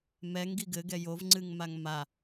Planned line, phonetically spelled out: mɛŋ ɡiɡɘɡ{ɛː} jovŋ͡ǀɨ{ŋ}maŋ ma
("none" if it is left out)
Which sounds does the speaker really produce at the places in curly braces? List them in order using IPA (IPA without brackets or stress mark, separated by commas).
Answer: ɛ, ŋ